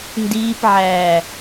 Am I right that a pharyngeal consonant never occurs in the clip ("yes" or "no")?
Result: no